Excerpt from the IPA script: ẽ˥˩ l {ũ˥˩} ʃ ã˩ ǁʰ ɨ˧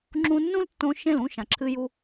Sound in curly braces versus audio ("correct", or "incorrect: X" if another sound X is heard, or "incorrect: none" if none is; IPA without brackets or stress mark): correct